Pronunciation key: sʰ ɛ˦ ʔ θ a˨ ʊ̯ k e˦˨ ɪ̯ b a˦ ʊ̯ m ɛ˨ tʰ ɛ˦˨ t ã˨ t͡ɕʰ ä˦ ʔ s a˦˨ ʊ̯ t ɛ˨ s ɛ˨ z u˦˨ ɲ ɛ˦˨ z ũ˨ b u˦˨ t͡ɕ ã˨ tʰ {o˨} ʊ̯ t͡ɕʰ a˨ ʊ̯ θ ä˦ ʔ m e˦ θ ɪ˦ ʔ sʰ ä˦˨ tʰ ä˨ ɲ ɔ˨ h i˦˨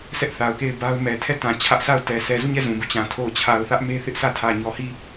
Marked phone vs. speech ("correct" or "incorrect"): incorrect